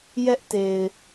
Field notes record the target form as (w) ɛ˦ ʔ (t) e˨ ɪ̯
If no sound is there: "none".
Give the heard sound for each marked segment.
j, t

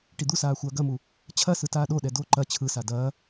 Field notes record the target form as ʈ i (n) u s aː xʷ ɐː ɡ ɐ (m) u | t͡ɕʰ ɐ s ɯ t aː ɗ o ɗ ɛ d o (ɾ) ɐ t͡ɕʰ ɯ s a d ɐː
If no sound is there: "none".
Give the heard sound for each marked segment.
d̪, m, ǃ

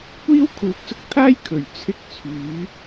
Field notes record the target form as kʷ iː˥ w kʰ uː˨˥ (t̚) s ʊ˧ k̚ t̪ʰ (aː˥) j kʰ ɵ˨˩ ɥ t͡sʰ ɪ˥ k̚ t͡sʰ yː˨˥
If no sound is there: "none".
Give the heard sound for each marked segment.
k̚, aː˥

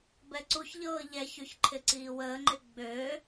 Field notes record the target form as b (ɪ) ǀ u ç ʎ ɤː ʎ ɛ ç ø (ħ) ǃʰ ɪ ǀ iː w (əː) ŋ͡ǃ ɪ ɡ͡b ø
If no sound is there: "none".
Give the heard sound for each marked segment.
ɛ, ç, əː

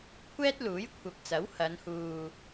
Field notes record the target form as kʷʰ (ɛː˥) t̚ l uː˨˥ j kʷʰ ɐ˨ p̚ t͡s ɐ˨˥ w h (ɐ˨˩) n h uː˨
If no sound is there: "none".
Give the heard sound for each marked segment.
ɛː˥, ɐ˨˧

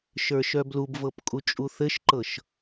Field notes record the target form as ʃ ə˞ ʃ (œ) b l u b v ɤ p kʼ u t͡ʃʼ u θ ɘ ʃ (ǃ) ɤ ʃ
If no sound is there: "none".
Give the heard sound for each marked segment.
œ, ǃ

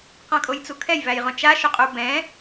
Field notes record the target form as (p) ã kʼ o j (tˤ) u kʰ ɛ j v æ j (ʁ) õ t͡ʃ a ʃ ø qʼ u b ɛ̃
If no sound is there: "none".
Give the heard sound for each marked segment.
q, t͡s, ʁ

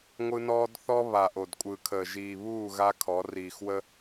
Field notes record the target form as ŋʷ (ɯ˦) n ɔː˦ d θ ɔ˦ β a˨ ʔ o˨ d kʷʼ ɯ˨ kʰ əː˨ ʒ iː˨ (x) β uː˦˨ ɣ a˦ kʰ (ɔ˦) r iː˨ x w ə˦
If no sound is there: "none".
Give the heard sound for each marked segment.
ɯ˦, none, ɔ˨˦

